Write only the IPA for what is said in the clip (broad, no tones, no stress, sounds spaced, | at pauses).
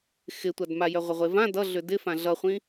x ɪ tʷ a d m a j œ ʁʷ ɪ ʁʷ e v ã d ʌ ɮ ʏ d ɪ f ã ɮ ʌ χʷ ĩ